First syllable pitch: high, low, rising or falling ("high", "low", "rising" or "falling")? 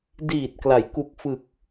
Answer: low